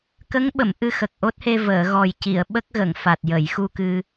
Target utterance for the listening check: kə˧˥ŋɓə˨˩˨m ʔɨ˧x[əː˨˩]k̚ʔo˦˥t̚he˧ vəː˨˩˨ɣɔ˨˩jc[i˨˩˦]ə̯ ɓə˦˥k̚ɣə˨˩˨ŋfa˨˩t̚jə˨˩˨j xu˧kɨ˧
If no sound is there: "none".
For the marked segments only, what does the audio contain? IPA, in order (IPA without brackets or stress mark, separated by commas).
ə˨˩, i˨˩˨